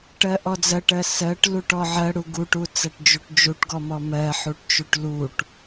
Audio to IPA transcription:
ʈ ɜ ʔ ɔ d͡z ɜ ʈ ɜ s ɜ ʈ l u ʈ ɔ ʕ ɜ ɽ u ɡ u ʈ u t͡s ɜ ʈ d͡ʒ u ʈ d͡ʒ u ʈ ɡ ɔ m ɔ m ɜ ħ u ʈ t͡ʃ u ʈ l u ʈ

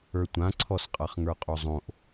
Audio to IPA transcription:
ə˞ tʷ ã ǀʰ ɔ s qʼ a χ ŋ ə˞ qʼ o zˤ õ ʔ

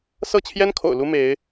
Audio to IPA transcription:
s ɤ˥˩ t͡ɕʰ j ɛ˥ n kʰ o̰˨˩ ʊ̯ l u˥ m e˧˥ ɪ̯

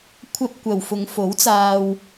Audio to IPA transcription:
kʷʰ ɐ˧ p̚ kʷ ɐ˨ w f ʊ˨˧ ŋ f o˨˥ w t͡s aː˧ w

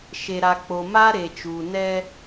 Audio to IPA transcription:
ʃ e˨ ɾ a˨ k͡p o˨ m a˦ ɾ e˨ t͡ʃ uː˨ n ɛ˦

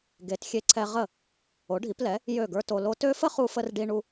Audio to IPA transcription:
ɡ e˩˥ t xʲ e˧ ǀʰ ɛ˧ ʁ ə˥˩ | o˩˥ ɖʱ i˩˥ p l ɛ˩˥ | j ø˥˩ ɡ ə˞˥ t o˧ l o˥ t ø˥ f ə˥ χ u˧ f ə˧ r ɖ i˥ ɳ u˥

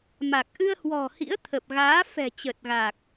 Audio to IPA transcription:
m a˨˩ k̚ ʔ ɨ˧ ə̯ h w ɔ̤˨˩ h ḭ˧˥ ə̯ t̪ʰ ə˨˩ p̚ ɣ aː˨˦ f ɛ̤˨˩ t͡ɕ ə˨˩ t̚ ɣ a˨˩ k̚

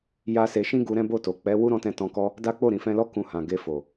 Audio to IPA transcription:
j a˦ s e˧ ʃ ĩ˦ ɡ u˧ ɾ ɛ̃˦ b o˦˨ t o˨ k͡p ɛ˨˦ w u˦ ɾ ɔ̃˧ t ɛ̃˧ t ɔ̃˧ k ɔ˦ | d a˦ k͡p o˦˨ ɾ ĩ˨ f ɛ̃˧ l ɔ˦ k ũ˧ h ã˨ ɡ e˧ f o˨

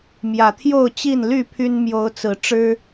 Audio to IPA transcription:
m j ä˨˩ t̪ʰ j o˥˨ ʊ̯ t͡ɕ i˥˨ n l y˥˨ pʰ y˦ n m j o˨˦ ʊ̯ t͡s ɹ̩˨˦ ʈ͡ʂ ɻ̩˦

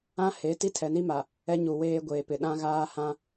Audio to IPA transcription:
ã˦ h e˨˦ t i˦ tʰ ɛ˨ n i˦ m a˨ | ɛ˦ ɲ u˨ w eː˦ ɡʷ eː˨ p ɪ˨ ɗ ã˦ ɣ aː˦ h ã˦

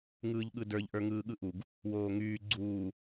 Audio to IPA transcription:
ŋ ɯː ʎ ɠ ɯ d ə˞ ʎ ʔ ə˞ ŋ ɯː ɠ ɯ ʔ u ɡ | w oː ŋ yː ɡ͡ǀ uː

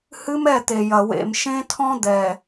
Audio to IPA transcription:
h ɨ˦ m ɛ˦˨ t̪ e˨ j ɐ˨ w ḛ˨ m ʃ ẽ˦ tʰ ɔ̃˦ d̪ ɛː˨

